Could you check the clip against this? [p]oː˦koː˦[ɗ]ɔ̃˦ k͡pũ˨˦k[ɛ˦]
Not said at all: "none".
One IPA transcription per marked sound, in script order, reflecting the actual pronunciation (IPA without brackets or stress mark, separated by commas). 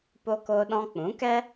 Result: p, ɗ, ɛ˦